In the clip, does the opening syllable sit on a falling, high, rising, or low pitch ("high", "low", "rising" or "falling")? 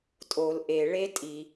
low